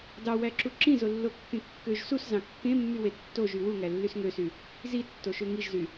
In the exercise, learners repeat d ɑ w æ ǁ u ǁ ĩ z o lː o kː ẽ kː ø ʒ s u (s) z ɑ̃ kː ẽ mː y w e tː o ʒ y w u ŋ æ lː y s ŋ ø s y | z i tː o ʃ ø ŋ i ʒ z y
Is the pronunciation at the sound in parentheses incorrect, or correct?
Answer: correct